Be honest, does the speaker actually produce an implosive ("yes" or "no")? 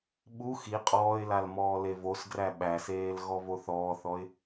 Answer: yes